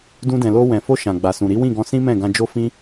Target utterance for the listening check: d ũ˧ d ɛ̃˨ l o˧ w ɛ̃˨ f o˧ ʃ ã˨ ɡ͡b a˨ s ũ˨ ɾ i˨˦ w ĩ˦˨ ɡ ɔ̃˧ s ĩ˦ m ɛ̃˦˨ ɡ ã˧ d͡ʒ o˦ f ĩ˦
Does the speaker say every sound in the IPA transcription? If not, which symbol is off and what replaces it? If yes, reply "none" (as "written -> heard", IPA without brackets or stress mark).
none